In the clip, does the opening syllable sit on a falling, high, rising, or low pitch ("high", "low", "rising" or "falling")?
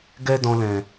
high